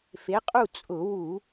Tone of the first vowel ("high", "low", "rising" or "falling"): rising